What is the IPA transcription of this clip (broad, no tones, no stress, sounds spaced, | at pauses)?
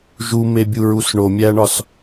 ʒ u m e bʲ u ɹ u s ɳ o mʲ æ ɳ ɒ s